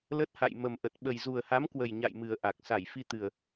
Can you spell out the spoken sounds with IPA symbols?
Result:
lə˦˥t̚ha̰˧˨j mə˨˩mʔə˨˩t̚ ɓə˨˩jzu˨˩ə̯ha˨˦mkwə˨˩j ɲa̰˧˨jmɨ˨˩ə̯ ʔa˨˩k̚ sa˧˩jfi˧t̪ɨ˨˩ə̯

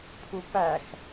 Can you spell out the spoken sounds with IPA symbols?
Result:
pʰupæx

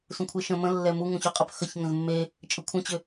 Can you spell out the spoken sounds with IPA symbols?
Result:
sũkʷʰeʃə̃ mə̃lːɛ muŋũçuqʼəp xəçŋə̃z mːe | t͡ʃʼəkʷʰə̃t͡ɕʏ

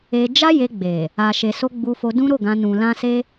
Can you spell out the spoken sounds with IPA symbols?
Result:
e˧ d͡ʒa˦je˧ɡ͡be˨ | a˨ʃe˨so˧ ɡ͡bu˧fo˧ dũ˦ɾo˦˨ɡã˧ nũ˨lã˧ se˧

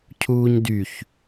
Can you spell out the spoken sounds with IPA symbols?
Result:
cʰuːɲdyç

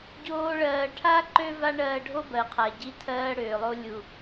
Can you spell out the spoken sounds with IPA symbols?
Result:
ɟoː˦ɭɜː˧ ʈʰa˦ ǃø˦va˦ɳɜː˧ ɖʱo˦bɜ˨qʰa˨ɟi˧ tʰɜː˦ ɽøː˨lˠo˦ lʲu˨

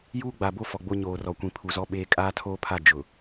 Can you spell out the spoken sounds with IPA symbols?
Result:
juː˦ ɡ͡ba˨bo˦ fɔ˨ɡ͡bo˦ ɲoː˨rɔ˨ kʷĩ˨pʰu˨zɔ˦ɓeː˦ kʼaː˦tʰoː˦pʰa˦˨ d͡ʒʊ˨

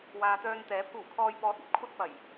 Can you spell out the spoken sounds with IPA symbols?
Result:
waː˨t̪œː˧nt̪ɛː˨˥ pʰuː˨˩kʰɔː˨jpɔː˨˥t̚ɐ˧p̚ kʷʰɐ˥t̚ pɐ˨˩j

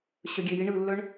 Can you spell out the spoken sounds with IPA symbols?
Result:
ɕœɡʲeji ɳɯlːœɳ

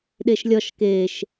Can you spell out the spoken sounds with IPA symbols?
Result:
ɗeʃlʲɒʃ keʃ

